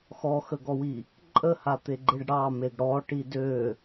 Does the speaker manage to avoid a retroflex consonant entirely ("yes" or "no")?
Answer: no